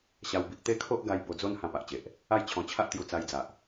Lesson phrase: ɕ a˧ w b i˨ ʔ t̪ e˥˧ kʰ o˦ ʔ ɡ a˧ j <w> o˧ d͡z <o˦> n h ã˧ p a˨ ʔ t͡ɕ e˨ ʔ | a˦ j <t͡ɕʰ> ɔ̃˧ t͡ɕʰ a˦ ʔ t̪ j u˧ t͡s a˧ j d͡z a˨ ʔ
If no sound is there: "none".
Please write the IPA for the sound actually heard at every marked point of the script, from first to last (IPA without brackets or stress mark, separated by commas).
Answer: b, o˦, t͡ɕʰ